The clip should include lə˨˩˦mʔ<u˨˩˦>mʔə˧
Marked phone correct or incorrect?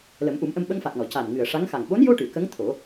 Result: correct